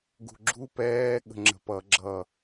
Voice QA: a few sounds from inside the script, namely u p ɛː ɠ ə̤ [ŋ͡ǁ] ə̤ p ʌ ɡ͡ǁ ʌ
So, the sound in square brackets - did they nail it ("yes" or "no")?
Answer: yes